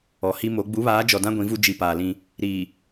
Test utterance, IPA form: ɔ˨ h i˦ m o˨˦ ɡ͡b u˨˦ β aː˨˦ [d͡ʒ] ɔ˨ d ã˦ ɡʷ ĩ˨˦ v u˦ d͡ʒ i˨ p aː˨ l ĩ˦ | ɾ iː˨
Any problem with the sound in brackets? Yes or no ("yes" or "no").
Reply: no